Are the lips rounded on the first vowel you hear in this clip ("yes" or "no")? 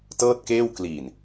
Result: no